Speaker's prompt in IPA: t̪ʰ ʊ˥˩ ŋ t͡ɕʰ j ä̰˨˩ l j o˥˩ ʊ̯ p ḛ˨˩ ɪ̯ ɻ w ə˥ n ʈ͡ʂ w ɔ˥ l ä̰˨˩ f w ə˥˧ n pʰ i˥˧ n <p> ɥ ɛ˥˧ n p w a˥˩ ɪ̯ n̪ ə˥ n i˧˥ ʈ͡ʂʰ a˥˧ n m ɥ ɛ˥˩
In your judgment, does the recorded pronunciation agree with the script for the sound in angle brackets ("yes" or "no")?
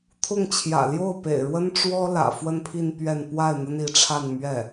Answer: yes